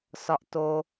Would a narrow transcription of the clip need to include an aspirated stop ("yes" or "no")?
no